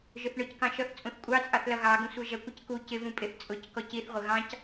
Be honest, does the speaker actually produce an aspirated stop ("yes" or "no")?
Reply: no